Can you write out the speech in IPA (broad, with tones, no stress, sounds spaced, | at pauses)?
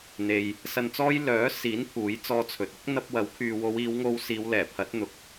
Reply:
n̪ e˨ j | s ɐ˧ n t͡s ɔː˥ j l œː˨˥ s iː˨˥ n pʰ uː˨˥ j t͡s ɔː˧ t͡sʰ ɵ˨ t̚ ʊ˥ k̚ n̪ ɐ˧ p̚ w ɐ˨˥ w kʰ yː˨ w o˨˧ w iː˨˧ w ŋ o˧ w s iː˨˧ w l ɛː˨˩ pʰ ɐ˨˥ t̚ n̪ ʊ˨ k̚